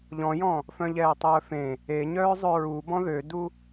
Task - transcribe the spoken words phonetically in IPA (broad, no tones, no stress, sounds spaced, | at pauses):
ʎ ɔ̃ j ɔ̃ | f œ̃ ʎ ɛː tˤ œː f ẽ | e ɲ œː zˤ ø ɹ u b ɔ̃ ð ø d u